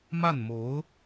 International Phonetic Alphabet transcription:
ma˥˩nmo˧˥ʊ̯

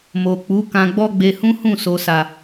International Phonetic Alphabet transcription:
mo˨k͡pu˨˦ kã˧ɡ͡bɔ˦ɡ͡be˧hũ˦ hũ˦˨so˨sa˨

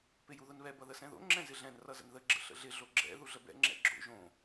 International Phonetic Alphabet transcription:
pɪjuðʊnβɛ bʌðəsɛ̃ðo̰ ŋ͡ǁɛ̃zɪɮɛ̃n rʌzə̰nðə ɡ͡ǁə̰ɬə̰ɮɪ ɮoɡ͡ǁɛ̰ ðuɮəbɛ̰ ŋ͡ǁɛ̰ɡ͡ǁo̰ ʒõ

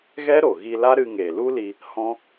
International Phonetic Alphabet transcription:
ɣɛ˦ɾo˨ɣi˧la˦ ɾɨ˧ŋeː˨lu˦li˧ | hɔ̃˦

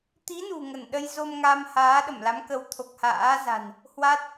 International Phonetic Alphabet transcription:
t̪i˨˦ nṳ˨˩ŋə˧˩n ɗə˧jzo˧m ŋa˧m haː˨˦ɗə˧˩mla˨˦mkə˨˦w t̪ʰo˨˩k̚ha̰ː˧˥za̤˨˩n | hwa˦˥t̚

